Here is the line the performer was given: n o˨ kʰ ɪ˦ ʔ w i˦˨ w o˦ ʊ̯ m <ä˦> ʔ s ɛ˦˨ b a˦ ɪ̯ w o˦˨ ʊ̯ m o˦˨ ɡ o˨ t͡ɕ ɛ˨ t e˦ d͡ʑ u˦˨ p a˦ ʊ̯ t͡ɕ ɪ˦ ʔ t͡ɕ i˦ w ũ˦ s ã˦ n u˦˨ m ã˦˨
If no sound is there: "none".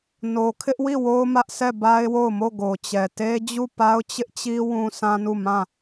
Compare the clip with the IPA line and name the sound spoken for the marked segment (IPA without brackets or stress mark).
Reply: ä˦